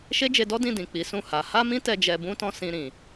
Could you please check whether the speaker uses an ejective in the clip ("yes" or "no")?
no